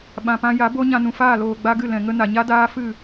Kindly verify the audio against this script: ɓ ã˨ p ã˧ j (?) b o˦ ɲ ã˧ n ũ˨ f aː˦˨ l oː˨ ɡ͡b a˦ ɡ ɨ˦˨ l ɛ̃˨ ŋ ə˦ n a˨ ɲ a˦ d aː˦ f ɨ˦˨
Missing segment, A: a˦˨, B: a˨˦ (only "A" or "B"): B